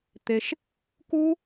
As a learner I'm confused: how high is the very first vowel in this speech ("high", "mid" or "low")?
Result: mid